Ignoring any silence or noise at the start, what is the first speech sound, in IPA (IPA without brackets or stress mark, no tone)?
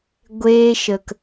ɡʷ